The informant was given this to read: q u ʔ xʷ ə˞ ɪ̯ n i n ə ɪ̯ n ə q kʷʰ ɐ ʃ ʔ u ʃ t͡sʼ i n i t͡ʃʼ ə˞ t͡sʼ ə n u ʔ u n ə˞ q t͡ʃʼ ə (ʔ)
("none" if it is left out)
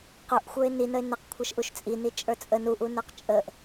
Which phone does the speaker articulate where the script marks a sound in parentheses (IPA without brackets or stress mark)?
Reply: ʔ